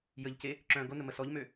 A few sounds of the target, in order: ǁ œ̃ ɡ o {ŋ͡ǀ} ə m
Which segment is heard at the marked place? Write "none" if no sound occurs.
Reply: n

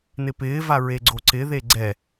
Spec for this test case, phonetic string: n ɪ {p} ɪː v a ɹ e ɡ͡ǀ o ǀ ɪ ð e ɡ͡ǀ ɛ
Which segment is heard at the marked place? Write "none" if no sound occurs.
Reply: p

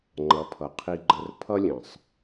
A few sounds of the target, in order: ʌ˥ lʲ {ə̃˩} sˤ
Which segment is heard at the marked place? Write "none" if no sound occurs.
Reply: ə̃˩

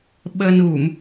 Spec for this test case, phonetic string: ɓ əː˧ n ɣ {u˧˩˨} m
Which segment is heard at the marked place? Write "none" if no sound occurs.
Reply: u˧˩˨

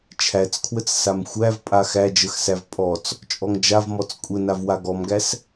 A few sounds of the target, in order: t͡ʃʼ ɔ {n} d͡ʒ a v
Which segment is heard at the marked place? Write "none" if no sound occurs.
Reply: ŋ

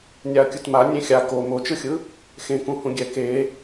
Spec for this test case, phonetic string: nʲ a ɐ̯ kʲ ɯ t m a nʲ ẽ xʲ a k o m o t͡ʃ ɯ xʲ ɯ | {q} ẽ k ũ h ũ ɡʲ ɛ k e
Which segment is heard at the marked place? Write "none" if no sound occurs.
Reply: x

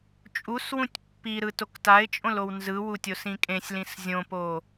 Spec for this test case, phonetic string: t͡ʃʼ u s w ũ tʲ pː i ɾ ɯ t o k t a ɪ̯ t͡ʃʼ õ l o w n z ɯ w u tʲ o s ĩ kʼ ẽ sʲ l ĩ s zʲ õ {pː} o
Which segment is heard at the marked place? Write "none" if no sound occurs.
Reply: p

